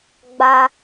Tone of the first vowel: high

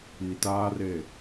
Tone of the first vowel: low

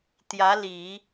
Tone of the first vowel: rising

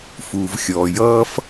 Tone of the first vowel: low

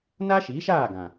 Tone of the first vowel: high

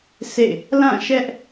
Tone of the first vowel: falling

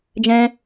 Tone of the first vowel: high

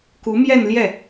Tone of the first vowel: rising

